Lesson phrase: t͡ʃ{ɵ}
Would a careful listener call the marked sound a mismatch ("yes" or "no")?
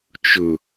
no